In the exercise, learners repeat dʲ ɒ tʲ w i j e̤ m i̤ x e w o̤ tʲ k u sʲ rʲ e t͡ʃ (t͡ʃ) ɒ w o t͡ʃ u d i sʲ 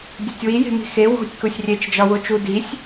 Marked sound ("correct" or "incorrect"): incorrect